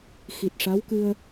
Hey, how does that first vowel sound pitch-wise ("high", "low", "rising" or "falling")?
low